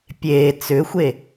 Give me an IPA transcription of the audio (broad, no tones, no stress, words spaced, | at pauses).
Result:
pʲeː t͡sʏxʷe